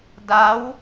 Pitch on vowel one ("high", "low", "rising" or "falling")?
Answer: rising